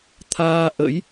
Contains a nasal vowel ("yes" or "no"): no